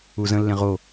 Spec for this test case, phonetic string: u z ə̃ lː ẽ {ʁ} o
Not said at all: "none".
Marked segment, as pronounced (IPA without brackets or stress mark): ʁ